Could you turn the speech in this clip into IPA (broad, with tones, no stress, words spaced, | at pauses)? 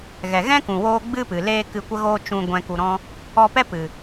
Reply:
ɣɛ˨ɣɛ̃˦kũ˨woː˧ ɡ͡bɨ˦pɨ˨ leː˧ kɨ˧kʷə˦ɣoː˦ t͡ʃũ˧ ɡʷɛ̃˧ku˧ɾɔ̃˦ | ɔ˧pɛ˦pɨ˨